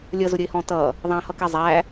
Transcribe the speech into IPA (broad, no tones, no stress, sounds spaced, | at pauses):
lʲ ʌ z ʊ ɾʲ ə ɪ̯ h ɔ̃ t ʌ | ðˤ æ̃ h ʌ k ɛ zˤ æ